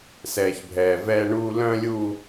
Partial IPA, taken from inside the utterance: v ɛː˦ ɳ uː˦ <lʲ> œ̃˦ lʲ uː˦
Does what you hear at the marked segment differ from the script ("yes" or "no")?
yes